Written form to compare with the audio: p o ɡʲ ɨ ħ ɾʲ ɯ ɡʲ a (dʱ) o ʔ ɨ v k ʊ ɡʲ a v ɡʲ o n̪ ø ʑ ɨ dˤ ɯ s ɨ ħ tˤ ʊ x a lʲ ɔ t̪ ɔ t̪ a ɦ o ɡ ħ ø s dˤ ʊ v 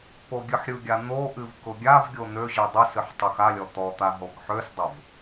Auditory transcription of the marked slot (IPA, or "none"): n̪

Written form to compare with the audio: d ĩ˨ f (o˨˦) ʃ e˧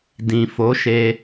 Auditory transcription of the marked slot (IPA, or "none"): o˨˦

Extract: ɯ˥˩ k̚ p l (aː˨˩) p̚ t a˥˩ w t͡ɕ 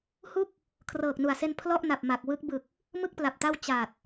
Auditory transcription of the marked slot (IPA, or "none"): a˨˩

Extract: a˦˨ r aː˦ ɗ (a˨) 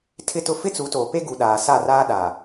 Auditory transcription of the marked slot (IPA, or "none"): a˨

